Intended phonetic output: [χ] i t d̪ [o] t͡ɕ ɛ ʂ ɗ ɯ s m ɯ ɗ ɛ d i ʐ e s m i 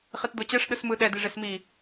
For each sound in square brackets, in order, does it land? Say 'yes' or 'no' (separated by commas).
yes, yes